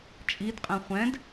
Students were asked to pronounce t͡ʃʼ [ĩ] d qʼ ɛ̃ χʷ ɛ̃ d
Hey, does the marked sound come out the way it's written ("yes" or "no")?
no